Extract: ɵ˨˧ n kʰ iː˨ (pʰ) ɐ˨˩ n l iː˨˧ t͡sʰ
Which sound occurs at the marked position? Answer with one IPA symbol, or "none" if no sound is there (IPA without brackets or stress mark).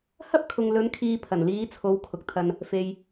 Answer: pʰ